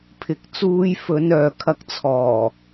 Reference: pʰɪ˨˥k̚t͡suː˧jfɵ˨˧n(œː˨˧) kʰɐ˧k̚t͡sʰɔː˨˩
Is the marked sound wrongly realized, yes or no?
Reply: yes